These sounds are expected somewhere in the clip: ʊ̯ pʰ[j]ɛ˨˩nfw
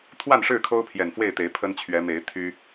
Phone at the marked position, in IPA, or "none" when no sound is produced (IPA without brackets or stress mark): j